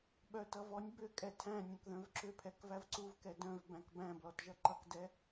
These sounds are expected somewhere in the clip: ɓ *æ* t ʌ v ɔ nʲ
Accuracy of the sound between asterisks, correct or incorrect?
incorrect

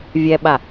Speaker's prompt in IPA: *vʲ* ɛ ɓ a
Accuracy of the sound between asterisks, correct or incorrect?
correct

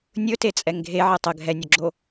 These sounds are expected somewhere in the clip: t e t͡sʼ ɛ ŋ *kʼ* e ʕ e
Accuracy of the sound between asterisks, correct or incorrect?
incorrect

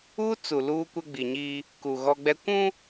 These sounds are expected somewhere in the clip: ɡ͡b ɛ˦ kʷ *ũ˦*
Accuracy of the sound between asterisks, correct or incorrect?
correct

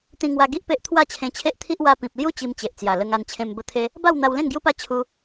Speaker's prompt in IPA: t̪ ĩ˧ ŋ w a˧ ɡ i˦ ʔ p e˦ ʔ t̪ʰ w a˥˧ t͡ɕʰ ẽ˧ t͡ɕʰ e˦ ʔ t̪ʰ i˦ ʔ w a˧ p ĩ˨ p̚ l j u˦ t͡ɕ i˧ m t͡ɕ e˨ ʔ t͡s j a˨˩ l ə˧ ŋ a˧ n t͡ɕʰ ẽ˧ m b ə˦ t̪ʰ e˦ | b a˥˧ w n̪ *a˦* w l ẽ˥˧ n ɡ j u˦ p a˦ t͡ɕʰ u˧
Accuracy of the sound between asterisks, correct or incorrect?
incorrect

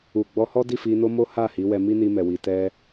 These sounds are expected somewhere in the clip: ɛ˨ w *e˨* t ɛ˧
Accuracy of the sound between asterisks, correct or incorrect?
incorrect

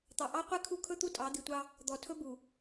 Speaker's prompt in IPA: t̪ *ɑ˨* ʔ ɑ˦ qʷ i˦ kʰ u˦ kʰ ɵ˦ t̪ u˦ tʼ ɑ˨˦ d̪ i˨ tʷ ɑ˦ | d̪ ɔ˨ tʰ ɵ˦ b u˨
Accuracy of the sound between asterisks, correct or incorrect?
correct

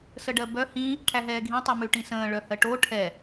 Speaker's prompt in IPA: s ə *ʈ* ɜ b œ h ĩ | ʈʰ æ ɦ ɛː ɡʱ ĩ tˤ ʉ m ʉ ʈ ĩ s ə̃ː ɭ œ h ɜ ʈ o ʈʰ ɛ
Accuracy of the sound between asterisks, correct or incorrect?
incorrect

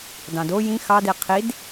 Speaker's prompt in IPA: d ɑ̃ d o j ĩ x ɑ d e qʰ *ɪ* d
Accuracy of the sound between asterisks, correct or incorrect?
incorrect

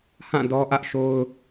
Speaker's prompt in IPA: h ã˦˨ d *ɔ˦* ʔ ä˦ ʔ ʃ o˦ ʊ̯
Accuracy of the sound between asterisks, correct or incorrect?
correct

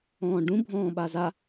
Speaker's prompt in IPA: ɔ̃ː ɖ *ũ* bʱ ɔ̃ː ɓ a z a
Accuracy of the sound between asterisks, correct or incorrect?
correct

